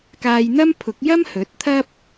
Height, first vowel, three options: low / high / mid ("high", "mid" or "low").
low